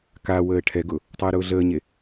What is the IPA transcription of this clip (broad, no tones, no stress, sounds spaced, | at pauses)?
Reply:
k a w əː ʈʰ ɛ ɡ ʊ | tˤ ʊː ɾ ʊː ɮ əː ɲ e